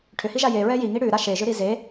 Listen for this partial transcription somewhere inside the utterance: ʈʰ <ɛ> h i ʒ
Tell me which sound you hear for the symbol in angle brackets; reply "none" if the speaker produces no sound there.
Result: ʏ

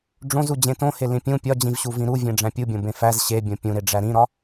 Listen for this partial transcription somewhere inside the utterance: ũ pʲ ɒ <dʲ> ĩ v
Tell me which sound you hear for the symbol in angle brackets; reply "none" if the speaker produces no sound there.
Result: d͡ʑ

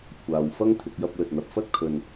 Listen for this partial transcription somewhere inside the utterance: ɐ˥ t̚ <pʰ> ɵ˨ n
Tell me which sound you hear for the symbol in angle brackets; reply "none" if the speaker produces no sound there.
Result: kʰ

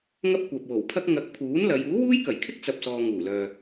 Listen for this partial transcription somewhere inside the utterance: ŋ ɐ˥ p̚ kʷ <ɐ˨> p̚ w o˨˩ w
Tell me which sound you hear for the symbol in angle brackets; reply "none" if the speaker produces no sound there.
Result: ɐ˨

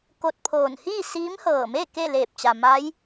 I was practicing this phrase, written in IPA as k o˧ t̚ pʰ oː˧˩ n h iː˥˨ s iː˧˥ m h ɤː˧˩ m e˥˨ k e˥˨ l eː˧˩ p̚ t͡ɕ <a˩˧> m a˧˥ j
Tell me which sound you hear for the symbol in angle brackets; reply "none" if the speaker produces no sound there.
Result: a˩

